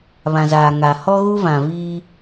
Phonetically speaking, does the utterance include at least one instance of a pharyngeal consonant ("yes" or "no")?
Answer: no